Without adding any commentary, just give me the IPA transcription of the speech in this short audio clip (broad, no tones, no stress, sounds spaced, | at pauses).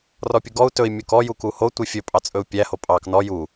r ɔ pʲ u ɡ ɔ u̯ t ɵ i̯ mʲ u k ɔ j u k u h o tʷ i fʲ ɵ pʼ ɑ t͡sʼ ɵ u̯ pʲ æ h o pʼ ɑ k n ɔ j u